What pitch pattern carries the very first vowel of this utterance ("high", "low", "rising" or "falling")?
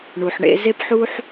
low